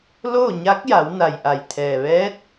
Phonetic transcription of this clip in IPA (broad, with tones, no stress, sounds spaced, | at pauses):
l oː˥˨ ɲ a˧˥ k̚ j a˩˧ w n a˩ j ʔ a˩ j t̪ʰ ɛː˩ ʋ ɛː˧˥ t̚